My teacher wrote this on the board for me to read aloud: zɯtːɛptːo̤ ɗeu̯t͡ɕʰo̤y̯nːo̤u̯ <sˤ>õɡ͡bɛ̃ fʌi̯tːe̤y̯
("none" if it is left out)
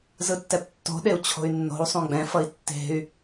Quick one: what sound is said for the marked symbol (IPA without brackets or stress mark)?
sˤ